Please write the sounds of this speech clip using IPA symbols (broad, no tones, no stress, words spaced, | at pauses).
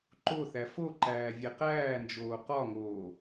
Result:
ǃoθæ foǃæː vʲeqæːnd͡ʒoː qɒŋoː